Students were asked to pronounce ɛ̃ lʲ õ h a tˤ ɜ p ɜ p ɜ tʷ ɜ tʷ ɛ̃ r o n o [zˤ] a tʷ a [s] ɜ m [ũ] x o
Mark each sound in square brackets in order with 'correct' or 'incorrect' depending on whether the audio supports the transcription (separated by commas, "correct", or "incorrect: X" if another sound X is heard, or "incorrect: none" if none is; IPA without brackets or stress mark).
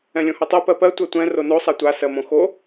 incorrect: sˤ, correct, incorrect: õ